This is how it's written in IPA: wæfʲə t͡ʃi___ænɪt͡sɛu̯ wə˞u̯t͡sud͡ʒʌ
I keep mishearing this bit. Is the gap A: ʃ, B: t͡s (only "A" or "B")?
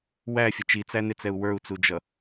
B